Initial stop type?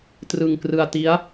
plain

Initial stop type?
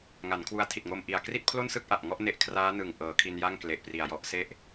aspirated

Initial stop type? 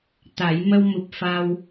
plain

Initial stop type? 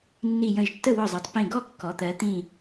plain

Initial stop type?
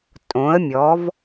ejective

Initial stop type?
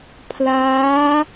aspirated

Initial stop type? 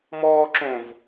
click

